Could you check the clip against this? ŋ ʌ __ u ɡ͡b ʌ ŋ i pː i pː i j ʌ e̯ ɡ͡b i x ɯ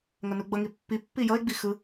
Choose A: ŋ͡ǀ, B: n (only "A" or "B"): B